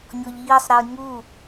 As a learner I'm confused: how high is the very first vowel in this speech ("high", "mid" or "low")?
mid